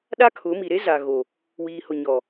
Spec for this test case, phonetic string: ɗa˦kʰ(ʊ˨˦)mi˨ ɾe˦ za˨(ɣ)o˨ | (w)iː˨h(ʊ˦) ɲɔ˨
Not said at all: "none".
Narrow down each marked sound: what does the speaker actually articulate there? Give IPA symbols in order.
ʊ˨˦, ɣ, w, ʊ˨

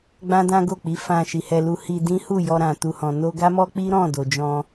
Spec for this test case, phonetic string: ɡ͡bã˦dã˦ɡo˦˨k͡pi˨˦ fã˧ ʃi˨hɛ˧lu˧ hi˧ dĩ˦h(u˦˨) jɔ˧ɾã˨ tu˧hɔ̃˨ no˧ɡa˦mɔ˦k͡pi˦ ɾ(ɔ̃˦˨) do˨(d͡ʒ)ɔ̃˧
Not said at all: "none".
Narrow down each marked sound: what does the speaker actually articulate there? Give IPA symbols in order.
u˦˨, ɔ̃˦˨, d͡ʒ

